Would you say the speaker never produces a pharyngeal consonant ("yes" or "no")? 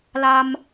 yes